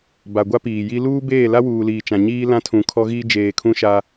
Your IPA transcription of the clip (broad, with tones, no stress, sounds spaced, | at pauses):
b a˨ ɡʷ a˦ p iː˨ j i˦ l uː˦ b eː˦˨ l a˦ w uː˨ l iː˨ t͡ʃ ã˨ ɲ iː˦ l ã˦ tʰ ũ˨ kʰ ɔ˦ ɣ iː˦ d͡ʒ eː˨ kʰ ũ˦ ʃ a˦